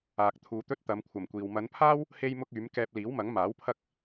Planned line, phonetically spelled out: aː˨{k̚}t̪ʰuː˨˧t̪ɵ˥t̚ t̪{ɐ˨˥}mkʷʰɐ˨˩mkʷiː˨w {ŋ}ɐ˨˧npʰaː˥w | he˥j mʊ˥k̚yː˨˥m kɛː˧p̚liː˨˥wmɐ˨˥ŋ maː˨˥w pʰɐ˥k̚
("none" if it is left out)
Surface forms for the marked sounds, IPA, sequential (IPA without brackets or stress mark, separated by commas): k̚, ɐ˨˧, m